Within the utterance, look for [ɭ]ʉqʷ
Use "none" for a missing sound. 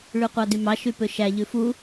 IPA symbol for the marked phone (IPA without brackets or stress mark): ɭ